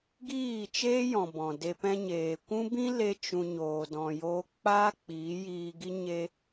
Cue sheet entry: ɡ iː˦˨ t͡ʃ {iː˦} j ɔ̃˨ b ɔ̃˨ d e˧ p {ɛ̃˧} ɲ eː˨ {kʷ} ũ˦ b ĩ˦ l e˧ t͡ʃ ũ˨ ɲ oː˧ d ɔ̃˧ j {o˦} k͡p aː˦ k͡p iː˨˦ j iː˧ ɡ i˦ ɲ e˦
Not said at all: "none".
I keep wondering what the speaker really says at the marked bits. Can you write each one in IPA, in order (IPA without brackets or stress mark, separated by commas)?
eː˦, ɛ̃˧, kʷ, oː˦